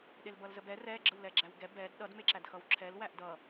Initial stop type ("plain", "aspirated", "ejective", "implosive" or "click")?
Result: implosive